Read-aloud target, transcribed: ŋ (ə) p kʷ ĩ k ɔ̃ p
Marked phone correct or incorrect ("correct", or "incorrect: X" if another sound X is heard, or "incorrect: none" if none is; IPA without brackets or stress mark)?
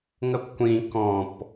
correct